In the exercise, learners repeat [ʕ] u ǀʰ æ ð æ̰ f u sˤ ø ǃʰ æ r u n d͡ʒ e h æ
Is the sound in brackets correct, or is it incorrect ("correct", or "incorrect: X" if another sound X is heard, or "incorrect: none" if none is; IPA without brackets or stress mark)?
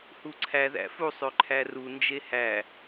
incorrect: h